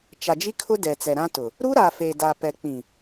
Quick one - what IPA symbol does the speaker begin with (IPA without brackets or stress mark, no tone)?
t͡ʃ